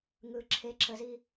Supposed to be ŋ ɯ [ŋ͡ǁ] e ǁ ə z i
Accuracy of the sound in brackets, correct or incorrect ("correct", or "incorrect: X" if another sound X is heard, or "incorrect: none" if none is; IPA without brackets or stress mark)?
incorrect: ǁʰ